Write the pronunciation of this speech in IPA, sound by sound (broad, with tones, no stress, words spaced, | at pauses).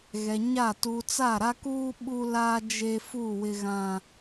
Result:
ɣɛ˨ɲa˦˨ tu˨t͡sa˦˨ɾa˦kuː˦ ɓu˦la˦d͡ʒe˦fu˦˨ wɪ˦ɣã˦